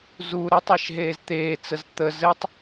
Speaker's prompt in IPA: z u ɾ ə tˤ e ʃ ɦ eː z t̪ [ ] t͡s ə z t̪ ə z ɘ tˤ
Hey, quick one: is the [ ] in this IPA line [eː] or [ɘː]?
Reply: eː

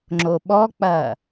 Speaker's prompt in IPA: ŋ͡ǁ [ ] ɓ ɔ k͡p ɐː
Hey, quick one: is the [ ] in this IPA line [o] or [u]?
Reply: o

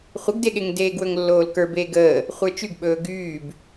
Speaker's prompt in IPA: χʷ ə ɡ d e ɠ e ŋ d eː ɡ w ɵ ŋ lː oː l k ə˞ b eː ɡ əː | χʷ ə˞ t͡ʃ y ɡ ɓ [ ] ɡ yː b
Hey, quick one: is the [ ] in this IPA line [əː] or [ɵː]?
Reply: ɵː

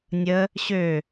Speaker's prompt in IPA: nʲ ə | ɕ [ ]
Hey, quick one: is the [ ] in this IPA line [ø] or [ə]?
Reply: ø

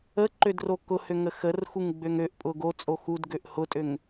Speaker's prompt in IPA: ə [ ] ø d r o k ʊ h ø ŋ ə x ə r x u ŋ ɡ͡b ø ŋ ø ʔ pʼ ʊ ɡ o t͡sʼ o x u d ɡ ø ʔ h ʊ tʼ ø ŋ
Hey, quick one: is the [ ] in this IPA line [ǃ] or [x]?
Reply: ǃ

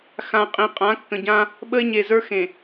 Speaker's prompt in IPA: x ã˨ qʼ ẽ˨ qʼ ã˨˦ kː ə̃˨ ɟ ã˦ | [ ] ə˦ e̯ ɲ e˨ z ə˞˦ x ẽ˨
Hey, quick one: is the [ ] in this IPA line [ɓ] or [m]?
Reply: ɓ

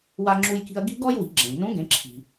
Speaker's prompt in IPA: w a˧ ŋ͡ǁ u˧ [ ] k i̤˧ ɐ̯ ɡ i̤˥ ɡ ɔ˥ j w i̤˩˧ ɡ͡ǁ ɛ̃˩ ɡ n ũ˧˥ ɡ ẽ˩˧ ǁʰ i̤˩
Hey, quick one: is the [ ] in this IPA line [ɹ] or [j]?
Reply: j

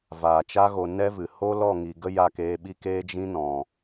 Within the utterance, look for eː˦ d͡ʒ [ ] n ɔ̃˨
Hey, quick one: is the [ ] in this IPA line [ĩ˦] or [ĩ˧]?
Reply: ĩ˦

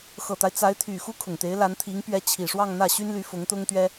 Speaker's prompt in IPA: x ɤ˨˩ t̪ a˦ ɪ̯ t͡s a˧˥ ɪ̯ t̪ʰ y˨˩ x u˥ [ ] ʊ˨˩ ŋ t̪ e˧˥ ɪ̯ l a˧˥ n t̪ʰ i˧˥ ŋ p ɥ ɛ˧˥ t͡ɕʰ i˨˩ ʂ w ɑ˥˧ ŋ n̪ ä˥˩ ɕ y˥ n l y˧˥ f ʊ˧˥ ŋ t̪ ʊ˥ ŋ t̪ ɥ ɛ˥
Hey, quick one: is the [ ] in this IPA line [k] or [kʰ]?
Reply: kʰ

